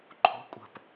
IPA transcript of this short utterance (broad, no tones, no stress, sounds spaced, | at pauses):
ǃʰ o̤ kʷʼ ə̤ p